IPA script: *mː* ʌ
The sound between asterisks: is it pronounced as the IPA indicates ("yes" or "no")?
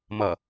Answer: no